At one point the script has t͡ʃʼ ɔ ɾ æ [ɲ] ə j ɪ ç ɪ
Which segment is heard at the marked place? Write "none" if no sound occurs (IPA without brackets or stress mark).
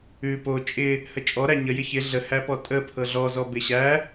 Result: ɲ